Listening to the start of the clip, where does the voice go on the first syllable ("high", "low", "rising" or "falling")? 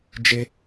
high